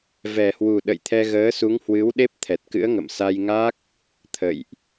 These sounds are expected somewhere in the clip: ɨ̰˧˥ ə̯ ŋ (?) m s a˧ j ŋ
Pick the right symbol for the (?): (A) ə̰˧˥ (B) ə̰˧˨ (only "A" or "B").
B